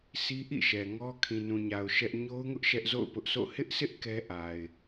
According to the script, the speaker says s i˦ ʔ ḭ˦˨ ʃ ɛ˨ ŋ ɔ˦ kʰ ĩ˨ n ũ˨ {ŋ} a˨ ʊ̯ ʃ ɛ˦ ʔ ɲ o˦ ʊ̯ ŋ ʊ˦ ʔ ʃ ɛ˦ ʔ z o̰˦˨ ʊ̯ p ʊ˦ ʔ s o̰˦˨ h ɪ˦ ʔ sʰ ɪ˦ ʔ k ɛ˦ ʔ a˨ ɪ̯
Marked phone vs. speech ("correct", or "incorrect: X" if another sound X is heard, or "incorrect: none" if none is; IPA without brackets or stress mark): incorrect: ɲ